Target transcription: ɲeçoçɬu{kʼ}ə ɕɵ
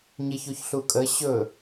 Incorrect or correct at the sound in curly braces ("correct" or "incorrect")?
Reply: correct